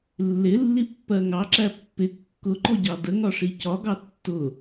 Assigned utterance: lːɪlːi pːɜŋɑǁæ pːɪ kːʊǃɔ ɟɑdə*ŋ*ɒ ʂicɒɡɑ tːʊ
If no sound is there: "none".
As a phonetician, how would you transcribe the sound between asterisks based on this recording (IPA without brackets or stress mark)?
ŋ